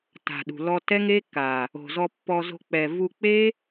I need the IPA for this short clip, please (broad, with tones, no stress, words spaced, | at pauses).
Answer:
ta̤˨ɗṳ˨ lɔ˧tɛ˦ŋe˦kːa˨ | o̤˨zɔ˧pːɔ˧zo̤˧ k͡pɛ˨vu˧k͡pe˦